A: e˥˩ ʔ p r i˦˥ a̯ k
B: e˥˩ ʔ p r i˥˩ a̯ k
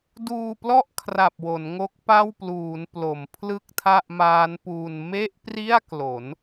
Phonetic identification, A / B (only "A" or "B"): B